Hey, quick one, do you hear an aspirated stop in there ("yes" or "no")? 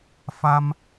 no